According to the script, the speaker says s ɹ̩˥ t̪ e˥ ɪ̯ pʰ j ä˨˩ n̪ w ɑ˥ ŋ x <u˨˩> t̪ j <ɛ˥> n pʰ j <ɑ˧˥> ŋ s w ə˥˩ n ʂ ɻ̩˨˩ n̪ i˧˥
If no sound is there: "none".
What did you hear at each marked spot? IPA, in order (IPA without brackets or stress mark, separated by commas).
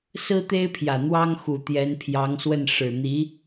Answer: u˨˩, ɛ˧˥, ɑ˧˥